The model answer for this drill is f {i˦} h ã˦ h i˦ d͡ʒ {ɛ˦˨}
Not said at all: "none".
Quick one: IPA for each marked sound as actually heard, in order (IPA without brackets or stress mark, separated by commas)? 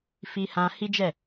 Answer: i˦, ɛ˦˨